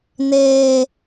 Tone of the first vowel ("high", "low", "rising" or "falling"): high